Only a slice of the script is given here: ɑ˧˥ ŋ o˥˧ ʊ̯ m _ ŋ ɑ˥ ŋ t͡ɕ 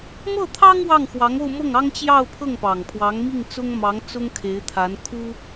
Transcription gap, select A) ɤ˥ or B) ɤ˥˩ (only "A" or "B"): B